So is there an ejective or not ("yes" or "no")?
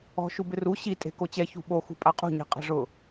yes